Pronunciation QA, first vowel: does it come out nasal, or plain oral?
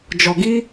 oral